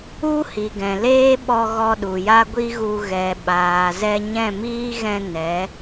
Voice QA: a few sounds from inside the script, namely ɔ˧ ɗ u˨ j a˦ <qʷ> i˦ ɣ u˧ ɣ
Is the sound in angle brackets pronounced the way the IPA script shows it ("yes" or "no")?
no